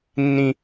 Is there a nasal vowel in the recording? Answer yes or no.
yes